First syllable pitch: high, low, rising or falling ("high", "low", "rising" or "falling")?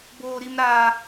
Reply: high